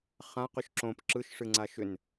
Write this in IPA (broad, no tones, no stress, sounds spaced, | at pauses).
χ ã q ʏ ʃ ǁ õ p ǁ ɯ ʃ ʂ ɨ ŋ͡ǀ a ʃ ʏ n